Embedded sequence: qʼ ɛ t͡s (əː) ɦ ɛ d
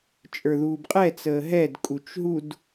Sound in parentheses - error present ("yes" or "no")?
no